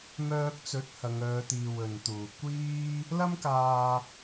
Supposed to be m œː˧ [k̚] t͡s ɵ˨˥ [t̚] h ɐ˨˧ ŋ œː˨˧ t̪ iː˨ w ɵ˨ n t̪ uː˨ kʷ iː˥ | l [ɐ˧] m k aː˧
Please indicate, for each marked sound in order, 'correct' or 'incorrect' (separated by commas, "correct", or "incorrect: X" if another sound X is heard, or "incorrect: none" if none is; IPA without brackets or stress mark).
correct, correct, incorrect: ɐ˥